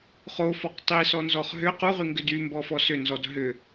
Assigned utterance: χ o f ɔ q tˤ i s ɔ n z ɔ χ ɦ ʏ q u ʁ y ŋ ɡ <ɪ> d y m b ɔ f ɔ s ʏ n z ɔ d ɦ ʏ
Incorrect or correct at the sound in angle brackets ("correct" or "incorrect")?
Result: incorrect